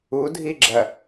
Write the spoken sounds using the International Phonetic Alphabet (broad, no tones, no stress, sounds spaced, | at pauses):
u dʱ i ɡ͡ǁ ɐ